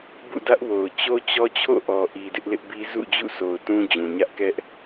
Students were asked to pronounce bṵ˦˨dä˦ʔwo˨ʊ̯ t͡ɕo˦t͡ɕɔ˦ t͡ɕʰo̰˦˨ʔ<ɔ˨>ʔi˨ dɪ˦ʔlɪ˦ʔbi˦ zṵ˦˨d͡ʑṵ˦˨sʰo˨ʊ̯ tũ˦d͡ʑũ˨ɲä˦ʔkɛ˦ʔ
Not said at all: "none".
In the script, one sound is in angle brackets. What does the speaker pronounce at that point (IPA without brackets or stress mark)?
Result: ɔ˨